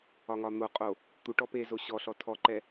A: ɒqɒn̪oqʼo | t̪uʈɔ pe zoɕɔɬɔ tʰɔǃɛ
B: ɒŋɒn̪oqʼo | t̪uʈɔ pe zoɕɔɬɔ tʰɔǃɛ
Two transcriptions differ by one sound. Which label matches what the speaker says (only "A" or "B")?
B